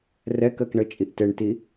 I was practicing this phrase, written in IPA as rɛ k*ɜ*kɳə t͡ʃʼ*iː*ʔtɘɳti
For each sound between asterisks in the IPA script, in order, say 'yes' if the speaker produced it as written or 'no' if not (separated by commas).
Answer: yes, no